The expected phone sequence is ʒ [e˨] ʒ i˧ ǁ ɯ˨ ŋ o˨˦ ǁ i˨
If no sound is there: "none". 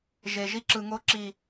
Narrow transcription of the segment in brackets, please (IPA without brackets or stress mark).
e˨